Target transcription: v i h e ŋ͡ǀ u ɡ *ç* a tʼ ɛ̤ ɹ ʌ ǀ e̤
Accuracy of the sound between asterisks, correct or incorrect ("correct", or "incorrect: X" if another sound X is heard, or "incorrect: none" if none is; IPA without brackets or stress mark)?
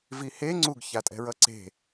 correct